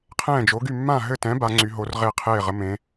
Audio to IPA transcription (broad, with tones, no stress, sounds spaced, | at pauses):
qʰ ɛ̃ː˥˨ d͡ʒ o˨˥ ɡ y˥˨ mː ã˥˨ ɦ ɘ˥˨ t ɛ̃˨˥ b a˨˥ ŋ͡ǀ y˨˥ ɦ o˨˥ r ʁ e˥˨ qʰ eː˥˨ ʁ ə˨˥ m ẽ˨˥